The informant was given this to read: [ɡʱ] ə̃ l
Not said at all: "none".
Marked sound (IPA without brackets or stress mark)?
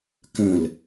k